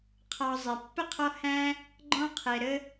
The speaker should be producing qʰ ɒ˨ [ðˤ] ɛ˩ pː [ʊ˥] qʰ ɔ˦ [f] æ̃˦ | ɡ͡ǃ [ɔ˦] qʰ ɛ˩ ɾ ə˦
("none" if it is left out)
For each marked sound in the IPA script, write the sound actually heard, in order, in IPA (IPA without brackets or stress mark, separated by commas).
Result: zˤ, ʊ˥, h, ɔ̃˦